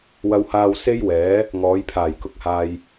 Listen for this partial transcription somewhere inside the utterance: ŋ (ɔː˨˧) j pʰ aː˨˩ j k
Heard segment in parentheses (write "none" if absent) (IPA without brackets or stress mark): ɔː˨˧